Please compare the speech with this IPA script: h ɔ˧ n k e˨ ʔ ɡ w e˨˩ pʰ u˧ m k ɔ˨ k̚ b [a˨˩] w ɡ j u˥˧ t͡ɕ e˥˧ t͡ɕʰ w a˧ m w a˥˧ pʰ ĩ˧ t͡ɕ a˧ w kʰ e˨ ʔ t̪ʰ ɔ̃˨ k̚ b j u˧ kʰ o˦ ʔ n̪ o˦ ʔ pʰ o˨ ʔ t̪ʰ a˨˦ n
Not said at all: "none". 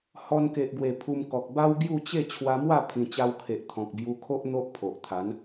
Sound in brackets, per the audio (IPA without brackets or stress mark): a˦